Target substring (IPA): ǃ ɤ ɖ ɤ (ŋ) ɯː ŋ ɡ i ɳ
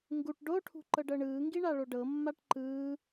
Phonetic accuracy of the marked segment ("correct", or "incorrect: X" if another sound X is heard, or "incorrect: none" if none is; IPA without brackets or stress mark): incorrect: ɳ